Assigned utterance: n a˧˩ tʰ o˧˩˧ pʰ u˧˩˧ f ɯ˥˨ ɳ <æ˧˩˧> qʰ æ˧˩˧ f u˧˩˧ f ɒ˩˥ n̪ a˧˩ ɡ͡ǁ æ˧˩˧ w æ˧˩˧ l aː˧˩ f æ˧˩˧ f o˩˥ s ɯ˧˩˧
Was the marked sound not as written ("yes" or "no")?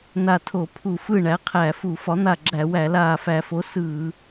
yes